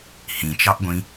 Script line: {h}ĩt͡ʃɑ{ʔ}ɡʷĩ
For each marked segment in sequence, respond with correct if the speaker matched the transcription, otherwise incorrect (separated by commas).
correct, correct